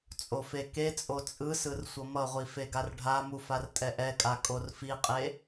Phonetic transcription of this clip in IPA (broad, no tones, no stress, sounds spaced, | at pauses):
t͡sʼ o f e k e t͡sʼ o t͡sʼ ɯ s ɯ r sʷ ʌ m ʌ ʁʷ i f e ɡ a r ɖʱ a m u f a r tʼ ɛ ʔ ɛ kʼ a kʼ o r f i qʼ e